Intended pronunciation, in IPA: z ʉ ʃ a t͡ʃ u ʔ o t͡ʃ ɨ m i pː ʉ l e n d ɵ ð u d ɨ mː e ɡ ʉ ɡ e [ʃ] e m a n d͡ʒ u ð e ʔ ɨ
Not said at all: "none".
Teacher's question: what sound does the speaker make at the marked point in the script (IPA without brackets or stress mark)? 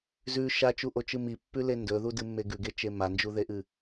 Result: t͡ʃ